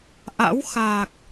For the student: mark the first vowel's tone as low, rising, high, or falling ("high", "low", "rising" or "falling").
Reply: rising